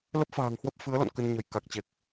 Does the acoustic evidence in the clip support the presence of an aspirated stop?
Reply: no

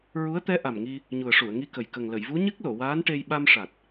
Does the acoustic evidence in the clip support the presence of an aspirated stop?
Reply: no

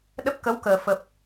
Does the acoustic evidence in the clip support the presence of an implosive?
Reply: yes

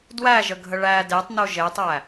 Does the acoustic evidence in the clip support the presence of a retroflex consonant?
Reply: yes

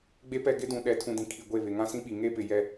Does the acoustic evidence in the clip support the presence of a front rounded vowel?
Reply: no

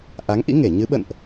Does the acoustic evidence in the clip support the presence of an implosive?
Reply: yes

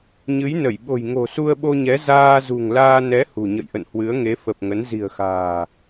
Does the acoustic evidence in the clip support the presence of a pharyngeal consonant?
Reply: no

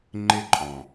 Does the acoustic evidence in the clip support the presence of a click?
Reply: yes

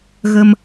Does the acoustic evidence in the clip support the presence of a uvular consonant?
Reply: no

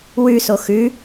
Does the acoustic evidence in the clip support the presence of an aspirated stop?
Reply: no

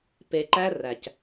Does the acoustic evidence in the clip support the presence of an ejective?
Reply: no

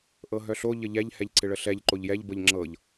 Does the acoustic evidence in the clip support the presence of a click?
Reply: yes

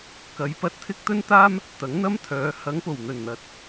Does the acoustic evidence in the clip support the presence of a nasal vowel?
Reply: no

